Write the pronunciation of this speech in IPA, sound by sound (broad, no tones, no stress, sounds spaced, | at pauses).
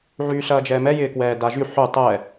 ʕ yː ɬ ɐː d͡ʒ ɛː m ɛ j ɪː k w ɛː d a ʒ y ħ y tˤ ɛː